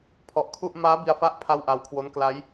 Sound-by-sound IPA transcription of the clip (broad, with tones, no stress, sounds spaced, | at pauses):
pʰ ɔ˨˩ ʔ kʰ u˥˩ ʔ m aː˦˥ b i˧ a̯ f a˦˥ ʔ pʰ a˥˩ w ʔ a˧ w kʰ w o˦˥ n k l a˦˥ j